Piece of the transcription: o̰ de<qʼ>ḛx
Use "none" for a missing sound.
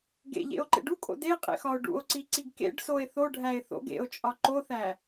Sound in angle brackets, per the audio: qʼ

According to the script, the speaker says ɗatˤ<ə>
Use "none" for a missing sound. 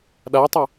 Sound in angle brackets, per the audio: ə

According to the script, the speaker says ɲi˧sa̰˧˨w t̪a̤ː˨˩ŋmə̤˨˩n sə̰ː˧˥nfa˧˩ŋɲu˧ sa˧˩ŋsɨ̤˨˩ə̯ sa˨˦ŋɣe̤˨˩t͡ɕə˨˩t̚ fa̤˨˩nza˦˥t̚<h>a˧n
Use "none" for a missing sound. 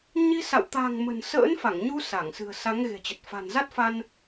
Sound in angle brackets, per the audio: f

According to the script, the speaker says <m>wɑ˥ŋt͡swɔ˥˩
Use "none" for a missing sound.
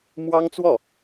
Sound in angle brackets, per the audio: m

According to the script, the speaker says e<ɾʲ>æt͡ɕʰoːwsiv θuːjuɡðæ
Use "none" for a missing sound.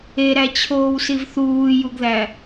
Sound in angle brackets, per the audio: ɾ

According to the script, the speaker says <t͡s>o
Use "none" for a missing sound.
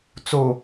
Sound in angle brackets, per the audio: t͡s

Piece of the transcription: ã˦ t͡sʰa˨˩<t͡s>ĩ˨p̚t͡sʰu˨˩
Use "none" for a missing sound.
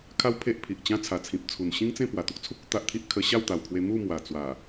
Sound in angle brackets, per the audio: t͡sʰ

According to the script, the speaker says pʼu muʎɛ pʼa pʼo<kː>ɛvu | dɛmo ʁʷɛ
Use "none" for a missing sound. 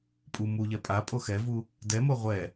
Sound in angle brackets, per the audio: x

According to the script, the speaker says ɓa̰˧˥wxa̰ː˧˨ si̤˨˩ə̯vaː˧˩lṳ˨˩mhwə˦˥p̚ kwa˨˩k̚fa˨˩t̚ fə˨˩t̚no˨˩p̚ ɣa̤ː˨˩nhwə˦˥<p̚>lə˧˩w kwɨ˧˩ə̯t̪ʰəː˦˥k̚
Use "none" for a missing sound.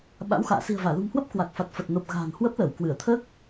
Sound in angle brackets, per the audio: p̚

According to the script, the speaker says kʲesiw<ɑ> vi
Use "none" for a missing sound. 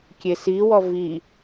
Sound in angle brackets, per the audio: ɔ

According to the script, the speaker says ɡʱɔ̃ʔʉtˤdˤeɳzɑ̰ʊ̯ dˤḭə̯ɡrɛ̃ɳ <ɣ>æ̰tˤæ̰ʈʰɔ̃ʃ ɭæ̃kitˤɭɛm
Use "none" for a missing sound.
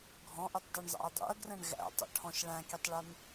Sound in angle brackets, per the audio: ɣ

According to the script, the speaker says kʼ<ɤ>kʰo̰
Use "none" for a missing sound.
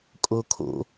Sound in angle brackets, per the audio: o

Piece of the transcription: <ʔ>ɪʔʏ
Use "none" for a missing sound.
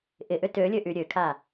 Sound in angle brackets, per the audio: ʔ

